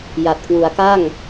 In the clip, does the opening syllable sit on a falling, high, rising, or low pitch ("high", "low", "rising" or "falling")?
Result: low